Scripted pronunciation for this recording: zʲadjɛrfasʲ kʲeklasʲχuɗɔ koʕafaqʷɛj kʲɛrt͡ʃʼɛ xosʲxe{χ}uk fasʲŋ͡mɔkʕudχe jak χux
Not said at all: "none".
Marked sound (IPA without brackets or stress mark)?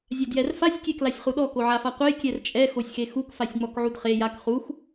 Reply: x